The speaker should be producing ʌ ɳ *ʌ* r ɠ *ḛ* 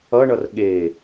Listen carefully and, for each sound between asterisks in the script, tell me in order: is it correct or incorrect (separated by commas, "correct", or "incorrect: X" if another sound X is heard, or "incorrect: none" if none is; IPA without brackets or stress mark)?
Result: correct, incorrect: e